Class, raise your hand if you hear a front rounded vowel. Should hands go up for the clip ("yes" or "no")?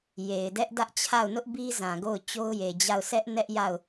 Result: no